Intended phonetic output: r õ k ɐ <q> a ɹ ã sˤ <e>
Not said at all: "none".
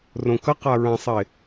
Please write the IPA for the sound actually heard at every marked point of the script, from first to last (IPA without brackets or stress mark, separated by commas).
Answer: q, e